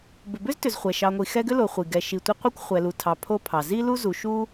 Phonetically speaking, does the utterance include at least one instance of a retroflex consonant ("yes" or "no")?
no